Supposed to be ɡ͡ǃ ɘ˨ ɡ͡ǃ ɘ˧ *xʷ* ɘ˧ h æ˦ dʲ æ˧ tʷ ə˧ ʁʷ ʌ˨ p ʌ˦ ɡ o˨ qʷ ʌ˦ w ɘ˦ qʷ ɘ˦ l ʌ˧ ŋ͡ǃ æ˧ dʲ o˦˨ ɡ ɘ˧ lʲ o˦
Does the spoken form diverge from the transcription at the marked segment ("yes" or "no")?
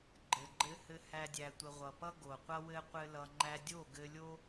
yes